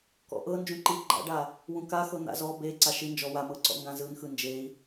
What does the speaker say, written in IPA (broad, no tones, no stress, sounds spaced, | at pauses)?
k ɔ̰ ʔ ɤ n d͡ʒ ũ ǃ i ɡ͡ǃ a̰ ɖ a | w ũ k a x ɤ n̪ a̰ z ɔ b e ǀ a ʃ i n d͡ʒ ɔ w a m ɤ ǀ ɔ̰ ŋ ɡ ã z ɯ n x ɯ n d͡ʒ e i̯